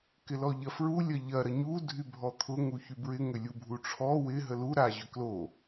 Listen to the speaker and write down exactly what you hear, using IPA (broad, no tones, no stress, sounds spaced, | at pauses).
k ɪ l ɔ ʎ ɐ f ɹ u lʲ ɐ ʎ ɐ ɾ ɐ ɲ u dʱ y bʱ ɔ t̪ʰ ʊ ŋ u ç y b ɹ ɪ ŋ ʏ lʲ u bʱ u ʈ͡ʂʰ ɔ w ɪ ɦ ə l u ɾ a ʑ ʏ k l o